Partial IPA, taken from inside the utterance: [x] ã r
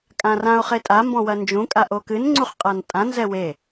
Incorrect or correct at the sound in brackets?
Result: incorrect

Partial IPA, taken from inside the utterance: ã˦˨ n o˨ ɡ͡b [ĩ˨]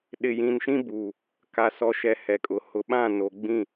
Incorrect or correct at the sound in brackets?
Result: incorrect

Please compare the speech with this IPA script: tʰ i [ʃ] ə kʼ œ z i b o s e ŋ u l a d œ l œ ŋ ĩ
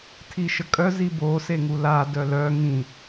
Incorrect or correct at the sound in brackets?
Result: correct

